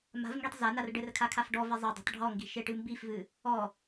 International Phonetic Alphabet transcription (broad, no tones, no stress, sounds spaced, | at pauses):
m a̤ v ŋ ɡ i tˤ z a n a r ɖ ɘ r kʰ a kʰ a f ɖ ɔ v e zˤ ɐ dˤ a̤ tˤ ɖʱ ɔ ŋ ɡ i̤ ʃ e ʈ ɨ m b i f v ɨ | ɔ